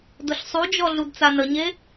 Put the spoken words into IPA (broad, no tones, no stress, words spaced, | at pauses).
dʊɬsˤud͡ʒɔ ɮudt͡sanəɲe